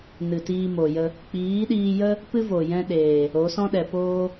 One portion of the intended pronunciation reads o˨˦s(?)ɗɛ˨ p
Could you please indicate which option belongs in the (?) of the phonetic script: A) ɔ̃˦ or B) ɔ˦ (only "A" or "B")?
A